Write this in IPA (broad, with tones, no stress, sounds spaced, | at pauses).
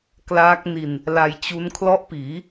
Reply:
k l aː˦˥ k̚ n i˧ n | l a˧ j t͡ɕ u˦˥ n kʰ l ɔ˦˥ ʔ p iː˩˦